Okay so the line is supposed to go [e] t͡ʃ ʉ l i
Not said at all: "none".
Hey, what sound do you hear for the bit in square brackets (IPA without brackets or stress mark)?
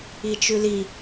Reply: i